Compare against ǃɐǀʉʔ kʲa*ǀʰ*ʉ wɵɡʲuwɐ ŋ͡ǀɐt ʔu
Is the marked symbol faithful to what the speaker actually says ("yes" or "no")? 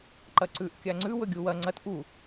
no